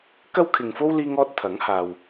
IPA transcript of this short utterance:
k ɐ˥ w kʰ ɪ˨ ŋ f o˥ w l iː˥ ŋ ɔː˥ t̚ t̪ʰ ɐ˨˥ ŋ h aː˨ w

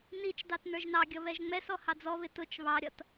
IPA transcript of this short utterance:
n i t͡ʃ d ɑ t n ə˞ ʒ n ɑ ɡʲ ʌ β ɛ ʒ ŋ͡m ɛ s ɔ h ɑ d͡z ɔ β ɪ t ʊ t͡ʃ β ɑ ɾʲ ʌ t

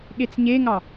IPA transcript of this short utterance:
ɠ e t͡s ɲ e ŋ ɑ

